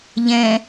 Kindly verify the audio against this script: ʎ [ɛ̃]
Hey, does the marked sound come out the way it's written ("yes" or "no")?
yes